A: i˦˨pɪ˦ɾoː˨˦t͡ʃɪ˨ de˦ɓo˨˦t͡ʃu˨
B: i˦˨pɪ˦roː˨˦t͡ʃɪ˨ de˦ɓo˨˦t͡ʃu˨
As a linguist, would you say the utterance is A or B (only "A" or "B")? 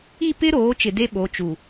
A